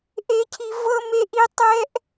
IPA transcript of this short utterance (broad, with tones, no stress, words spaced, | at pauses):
ʔe˥cʰi˥ vɤ˥me˥ʔi˥ tˤɛ˥ʔ